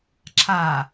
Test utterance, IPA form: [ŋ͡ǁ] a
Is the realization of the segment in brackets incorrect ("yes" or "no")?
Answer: yes